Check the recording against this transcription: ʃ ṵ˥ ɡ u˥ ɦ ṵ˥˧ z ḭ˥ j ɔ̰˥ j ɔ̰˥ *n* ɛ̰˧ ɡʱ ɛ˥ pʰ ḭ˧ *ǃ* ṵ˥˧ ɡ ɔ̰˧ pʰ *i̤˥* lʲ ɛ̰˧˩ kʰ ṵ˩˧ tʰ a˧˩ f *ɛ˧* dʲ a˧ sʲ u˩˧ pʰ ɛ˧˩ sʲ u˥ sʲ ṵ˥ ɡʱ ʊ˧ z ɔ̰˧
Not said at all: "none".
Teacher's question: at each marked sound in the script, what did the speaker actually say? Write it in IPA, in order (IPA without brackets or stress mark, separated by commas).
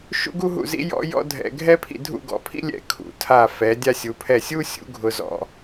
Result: dʱ, dʱ, ḭ˥, ɛ˩˧